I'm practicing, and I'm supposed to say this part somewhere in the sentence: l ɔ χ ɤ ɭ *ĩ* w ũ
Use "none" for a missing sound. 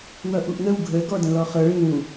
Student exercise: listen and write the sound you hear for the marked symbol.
ĩ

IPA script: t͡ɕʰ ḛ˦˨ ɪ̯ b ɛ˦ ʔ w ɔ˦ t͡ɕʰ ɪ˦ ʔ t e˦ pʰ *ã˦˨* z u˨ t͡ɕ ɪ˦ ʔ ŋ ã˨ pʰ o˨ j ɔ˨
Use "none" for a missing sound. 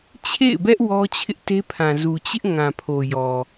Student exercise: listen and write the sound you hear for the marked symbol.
ã˨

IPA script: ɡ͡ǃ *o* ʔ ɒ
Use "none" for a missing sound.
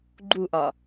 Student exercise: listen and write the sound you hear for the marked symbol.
u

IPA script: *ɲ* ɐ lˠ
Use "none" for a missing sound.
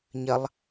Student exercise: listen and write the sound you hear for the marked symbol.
ɲ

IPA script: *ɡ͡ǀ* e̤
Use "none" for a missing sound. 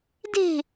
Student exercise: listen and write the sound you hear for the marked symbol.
d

